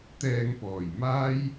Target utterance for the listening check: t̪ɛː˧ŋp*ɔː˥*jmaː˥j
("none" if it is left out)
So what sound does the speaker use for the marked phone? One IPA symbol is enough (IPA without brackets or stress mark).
ɔː˨˩